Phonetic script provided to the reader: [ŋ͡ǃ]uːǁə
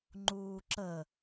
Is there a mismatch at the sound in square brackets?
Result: no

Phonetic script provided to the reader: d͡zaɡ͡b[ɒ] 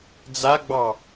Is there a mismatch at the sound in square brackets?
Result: yes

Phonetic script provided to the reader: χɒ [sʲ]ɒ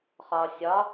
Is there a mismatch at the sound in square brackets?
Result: no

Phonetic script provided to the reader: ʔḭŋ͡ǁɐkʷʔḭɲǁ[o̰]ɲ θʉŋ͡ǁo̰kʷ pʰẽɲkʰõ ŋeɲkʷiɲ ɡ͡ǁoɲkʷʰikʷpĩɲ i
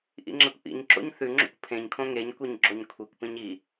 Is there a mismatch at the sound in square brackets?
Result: no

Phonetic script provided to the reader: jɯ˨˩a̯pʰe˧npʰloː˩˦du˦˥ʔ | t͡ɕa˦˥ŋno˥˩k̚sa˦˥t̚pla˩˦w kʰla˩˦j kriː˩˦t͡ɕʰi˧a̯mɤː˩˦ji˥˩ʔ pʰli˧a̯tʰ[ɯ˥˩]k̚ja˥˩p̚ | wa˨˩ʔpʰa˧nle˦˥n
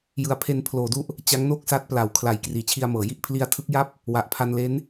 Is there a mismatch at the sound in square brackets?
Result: yes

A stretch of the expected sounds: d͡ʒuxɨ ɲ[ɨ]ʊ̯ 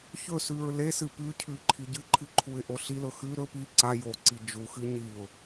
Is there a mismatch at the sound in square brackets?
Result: yes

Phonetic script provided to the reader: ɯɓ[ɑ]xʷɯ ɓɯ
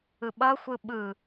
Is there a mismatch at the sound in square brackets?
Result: yes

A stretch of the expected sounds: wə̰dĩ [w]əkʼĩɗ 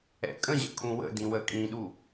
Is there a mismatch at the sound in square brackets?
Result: no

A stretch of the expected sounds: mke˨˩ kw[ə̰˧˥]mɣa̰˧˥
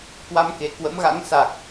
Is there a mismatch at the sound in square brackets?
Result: no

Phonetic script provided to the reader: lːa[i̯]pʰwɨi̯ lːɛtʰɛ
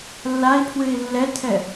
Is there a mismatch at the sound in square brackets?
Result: no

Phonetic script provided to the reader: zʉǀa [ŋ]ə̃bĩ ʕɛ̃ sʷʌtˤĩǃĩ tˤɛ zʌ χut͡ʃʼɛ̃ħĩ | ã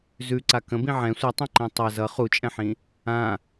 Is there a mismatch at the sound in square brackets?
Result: yes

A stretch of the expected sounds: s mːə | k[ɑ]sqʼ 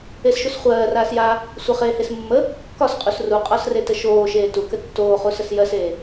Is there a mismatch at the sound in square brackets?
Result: yes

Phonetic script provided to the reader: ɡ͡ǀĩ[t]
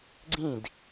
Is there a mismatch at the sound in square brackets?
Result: yes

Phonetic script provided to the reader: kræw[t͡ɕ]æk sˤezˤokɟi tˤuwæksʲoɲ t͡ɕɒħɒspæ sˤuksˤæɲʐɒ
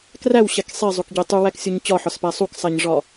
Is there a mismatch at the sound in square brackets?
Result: yes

